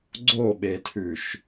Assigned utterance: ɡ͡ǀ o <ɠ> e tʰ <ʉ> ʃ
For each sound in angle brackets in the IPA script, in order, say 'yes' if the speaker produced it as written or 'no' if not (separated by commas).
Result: no, yes